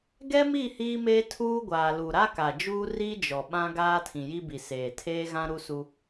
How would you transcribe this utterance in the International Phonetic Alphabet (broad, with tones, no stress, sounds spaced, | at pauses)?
ɡ ɛ˦ m i˦˨ h iː˦ m eː˦ tʰ uː˦ ɡʷ aː˨ l u˨ ɾ a˦ k a˨ d͡ʒ uː˦ r iː˦ d͡ʒ ɔ˨ ɓ ã˦ ɡ aː˦ tʰ ĩ˨ j i˦ b i˨ s eː˨ tʰ eː˦ ɣ ã˦ ɾ u˦ s u˦